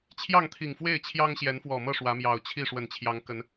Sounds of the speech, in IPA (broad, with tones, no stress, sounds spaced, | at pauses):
t͡ɕʰ j ɑ˥˨ ŋ t̪ʰ i˨˩ ŋ f w e˥˨ ɪ̯ t͡ɕʰ j ɑ˦ ŋ ɕ j ɛ˨˦ n f w ɔ˨˩ m ɤ˥˨ ʂ w ä˨˦ m j ɑ˨˩ ʊ̯ t͡ɕʰ i˥˨ ʂ w ə˨˩ n t͡ɕʰ j ɑ˨˦ ŋ k ə˨˦ n